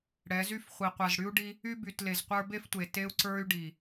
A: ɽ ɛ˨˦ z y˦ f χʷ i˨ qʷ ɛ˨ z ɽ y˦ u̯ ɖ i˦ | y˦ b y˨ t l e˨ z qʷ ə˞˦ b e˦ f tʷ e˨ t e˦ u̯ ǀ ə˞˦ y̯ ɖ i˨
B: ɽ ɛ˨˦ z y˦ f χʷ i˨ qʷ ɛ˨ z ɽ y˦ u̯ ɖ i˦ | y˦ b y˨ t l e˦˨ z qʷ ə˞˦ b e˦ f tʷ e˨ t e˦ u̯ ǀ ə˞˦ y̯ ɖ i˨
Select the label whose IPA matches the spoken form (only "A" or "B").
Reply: A